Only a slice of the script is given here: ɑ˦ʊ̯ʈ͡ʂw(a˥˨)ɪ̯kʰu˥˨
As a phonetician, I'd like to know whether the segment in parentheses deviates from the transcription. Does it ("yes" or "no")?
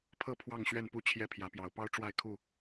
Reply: no